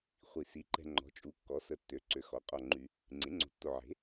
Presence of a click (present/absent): present